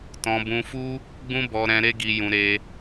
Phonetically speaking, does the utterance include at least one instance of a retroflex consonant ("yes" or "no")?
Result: no